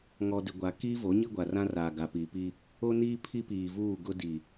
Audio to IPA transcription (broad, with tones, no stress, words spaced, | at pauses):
ŋɔ˨dɪ˨ ɡʷa˨kiː˦vo˨˦ɲi˦ ɡʷa˨rã˦raː˨ ɡa˨piː˨piː˦ | o˦niː˦ pʰi˦piː˨vuː˦˨ ɡʊ˦di˨